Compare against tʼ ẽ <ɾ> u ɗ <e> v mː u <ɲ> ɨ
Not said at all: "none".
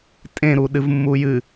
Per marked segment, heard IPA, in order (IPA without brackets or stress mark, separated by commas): ɾ, ɨ, j